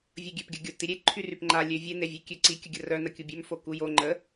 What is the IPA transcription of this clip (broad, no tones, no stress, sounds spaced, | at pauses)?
vʲ ə ɡʲ ø p ɡʲ ə ɡʲ o t i ɾʲ e ǃʰ y r y p ŋ͡ǃ a lʲ ø vʲ e n e vʲ ø kʲ ø ǀ i kʲ ə ɡʲ ə r œ n ə kʲ u bʲ ø m f o k u j o ŋ͡ǃ ə